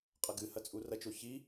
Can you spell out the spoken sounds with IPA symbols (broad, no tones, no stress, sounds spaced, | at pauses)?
qʼ ɐ ɡ ɨ h ɐ t͡sʼ u r ɐ t͡ʃ o ç i